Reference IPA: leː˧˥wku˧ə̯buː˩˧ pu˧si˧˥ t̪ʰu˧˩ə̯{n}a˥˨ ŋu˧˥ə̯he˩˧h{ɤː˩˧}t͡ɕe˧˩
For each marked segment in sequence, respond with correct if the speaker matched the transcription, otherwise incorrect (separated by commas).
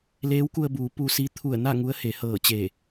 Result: correct, incorrect